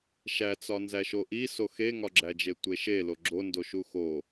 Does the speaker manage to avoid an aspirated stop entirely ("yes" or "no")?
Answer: yes